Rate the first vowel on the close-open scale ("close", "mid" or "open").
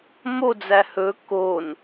mid